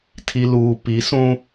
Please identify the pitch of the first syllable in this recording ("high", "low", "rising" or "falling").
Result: low